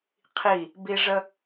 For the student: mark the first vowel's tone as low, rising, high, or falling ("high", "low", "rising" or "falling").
falling